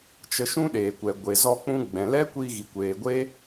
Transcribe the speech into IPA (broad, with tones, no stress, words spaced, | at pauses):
t͡ʃə˧ʃũ˦ɗeː˨kʷɛ˨ ɡʷe˨zɔ˧k͡pũ˧ ɡ͡bɛ̃˨lɛ˦kʷi˧ ɣi˨kʷeː˨ɡʷe˦